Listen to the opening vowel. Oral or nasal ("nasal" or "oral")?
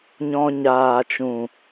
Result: nasal